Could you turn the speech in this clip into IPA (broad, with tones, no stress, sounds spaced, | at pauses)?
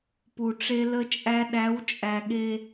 p u˨ ʈ͡ʂ e˦ l ə˦ t͡ʃʼ æ˦ ɗ æ˨˦ w t͡ʃʼ æ˨ ɠ e˦